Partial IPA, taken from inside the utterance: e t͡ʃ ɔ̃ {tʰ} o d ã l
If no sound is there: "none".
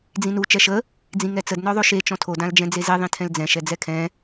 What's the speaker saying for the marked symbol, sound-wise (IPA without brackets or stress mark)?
tʰ